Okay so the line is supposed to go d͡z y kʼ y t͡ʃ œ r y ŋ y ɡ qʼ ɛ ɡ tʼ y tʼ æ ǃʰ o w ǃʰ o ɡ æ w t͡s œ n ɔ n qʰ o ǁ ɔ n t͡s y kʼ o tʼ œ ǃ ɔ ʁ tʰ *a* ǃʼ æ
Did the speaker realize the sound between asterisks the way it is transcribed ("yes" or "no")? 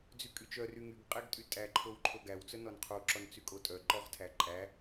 no